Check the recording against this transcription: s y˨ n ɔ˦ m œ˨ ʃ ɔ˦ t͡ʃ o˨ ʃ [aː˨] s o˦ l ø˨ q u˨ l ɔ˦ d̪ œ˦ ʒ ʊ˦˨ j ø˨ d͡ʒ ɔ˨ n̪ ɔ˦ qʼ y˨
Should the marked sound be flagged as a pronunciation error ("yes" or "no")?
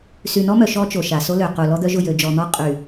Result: yes